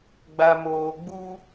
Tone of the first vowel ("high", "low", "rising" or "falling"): low